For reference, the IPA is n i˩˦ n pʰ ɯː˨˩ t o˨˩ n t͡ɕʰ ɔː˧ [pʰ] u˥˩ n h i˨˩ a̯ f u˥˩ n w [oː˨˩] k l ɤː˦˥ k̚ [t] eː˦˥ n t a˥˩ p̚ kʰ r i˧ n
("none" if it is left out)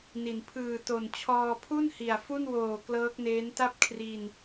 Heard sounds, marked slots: pʰ, oː˨˩, n

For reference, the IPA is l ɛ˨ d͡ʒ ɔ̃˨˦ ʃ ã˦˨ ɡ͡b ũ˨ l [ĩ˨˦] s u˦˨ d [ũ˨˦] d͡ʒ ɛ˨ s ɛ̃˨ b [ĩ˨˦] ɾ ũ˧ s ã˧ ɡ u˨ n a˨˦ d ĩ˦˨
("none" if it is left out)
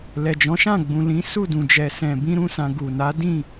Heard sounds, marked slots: ĩ˨˦, ũ˨, ĩ˧

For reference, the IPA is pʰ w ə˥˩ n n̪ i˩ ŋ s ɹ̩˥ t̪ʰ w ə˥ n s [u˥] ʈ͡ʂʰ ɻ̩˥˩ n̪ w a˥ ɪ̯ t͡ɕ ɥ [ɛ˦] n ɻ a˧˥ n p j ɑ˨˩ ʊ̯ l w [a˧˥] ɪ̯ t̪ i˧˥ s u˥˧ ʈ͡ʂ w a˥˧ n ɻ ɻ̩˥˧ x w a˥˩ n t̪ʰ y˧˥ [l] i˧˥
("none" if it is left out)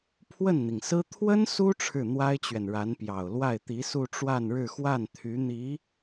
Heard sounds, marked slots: u˥, ɛ˨, a˥˩, n̪

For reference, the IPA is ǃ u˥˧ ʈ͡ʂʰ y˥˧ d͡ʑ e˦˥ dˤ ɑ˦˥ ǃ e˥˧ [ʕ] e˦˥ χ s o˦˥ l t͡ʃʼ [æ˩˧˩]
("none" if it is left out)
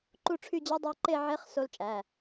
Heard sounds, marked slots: ʕ, æ˩˧˩

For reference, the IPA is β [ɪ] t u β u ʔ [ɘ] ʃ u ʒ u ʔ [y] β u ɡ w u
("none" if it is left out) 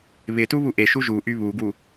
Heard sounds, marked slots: ɪ, e, y

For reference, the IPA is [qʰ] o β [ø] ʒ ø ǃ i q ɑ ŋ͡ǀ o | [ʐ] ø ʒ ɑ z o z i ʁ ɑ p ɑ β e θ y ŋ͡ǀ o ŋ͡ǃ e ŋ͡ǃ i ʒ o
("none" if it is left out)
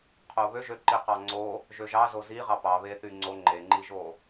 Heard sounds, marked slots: qʰ, ø, ʒ

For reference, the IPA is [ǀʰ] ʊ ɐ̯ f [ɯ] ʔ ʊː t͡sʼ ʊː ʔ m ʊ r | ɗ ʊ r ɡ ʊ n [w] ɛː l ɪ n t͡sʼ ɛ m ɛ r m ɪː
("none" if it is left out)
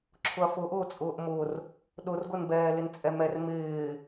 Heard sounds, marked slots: ǁʰ, ʊ, b

